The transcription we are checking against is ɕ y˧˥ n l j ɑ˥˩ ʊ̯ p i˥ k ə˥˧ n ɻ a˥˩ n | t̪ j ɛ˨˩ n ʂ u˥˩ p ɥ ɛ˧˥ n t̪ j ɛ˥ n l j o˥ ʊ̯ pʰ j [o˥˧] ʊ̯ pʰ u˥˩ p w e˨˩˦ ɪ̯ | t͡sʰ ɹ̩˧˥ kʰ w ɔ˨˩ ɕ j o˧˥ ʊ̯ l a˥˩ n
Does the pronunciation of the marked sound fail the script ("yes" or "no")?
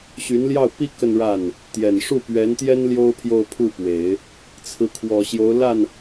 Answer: no